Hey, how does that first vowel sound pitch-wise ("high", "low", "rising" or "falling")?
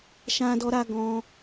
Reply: high